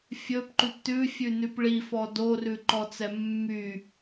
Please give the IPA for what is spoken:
fʲɵpǃʉp tʉfʲʉnʉp ɭifɔ dorʉǃɔt͡sɛ mːy

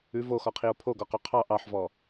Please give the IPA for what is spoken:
ʉ voxɔqʰio̯ pʰoɡɔqo qʰɑ ʔɑħvɔ

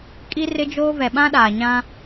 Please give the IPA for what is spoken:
kʼi˦rɪ˦d͡ʒoː˦ vɛ˨ɓã˦ɗaː˨ɲã˦

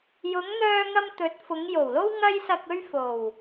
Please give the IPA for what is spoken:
jʊ˨˧ŋn̪œː˧ŋɐ˧m t̪ɵ˨˥t̚fʊ˨˧ŋjo˨˩wlo˥w ŋɐ˧jsɐ˨k̚ɵ˧ɥ fo˨˩w

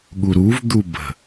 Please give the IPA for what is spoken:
ɠuɾuv d̪ubə̤

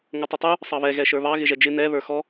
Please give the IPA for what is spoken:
ŋʌtˤɪtˤu | sˤɑβɛ ɣɛʃə˞βɑ ɣɪʒɛd͡ʒɪ nɛ βə˞xɔ

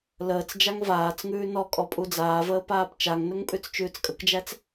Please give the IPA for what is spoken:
ləːt͡s d͡ʒaŋvaːt͡sŋʉː nɔkʼɔ pʼud͡zaːvəː paːpt͡ʃaŋnɵŋ pʼʉt͡st͡ʃʉːt͡skʼəkd͡ʒæt͡s

